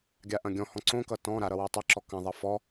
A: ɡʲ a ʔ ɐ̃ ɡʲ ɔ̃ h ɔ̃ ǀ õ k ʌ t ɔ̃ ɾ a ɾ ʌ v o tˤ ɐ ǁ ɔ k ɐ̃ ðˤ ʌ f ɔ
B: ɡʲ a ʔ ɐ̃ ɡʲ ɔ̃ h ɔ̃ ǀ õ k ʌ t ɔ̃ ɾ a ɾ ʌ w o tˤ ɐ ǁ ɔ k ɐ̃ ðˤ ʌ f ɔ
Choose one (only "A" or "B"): B